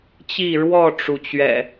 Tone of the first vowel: falling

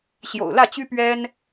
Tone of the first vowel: low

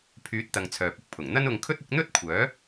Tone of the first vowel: rising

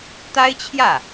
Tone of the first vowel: high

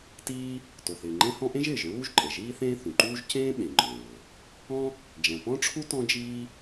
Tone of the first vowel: high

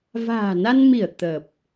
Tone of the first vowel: low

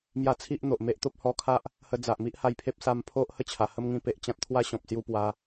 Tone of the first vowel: high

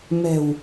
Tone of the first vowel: low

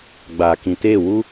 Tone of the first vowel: low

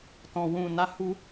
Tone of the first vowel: low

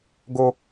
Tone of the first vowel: high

